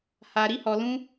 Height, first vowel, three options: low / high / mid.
low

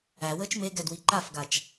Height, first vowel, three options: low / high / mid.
low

